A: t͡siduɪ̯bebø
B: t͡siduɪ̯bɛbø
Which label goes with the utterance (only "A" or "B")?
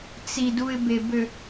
A